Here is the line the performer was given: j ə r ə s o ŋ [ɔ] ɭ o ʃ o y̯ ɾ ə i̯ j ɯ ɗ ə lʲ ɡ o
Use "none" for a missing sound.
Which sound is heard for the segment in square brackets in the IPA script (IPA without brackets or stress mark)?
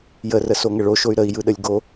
ə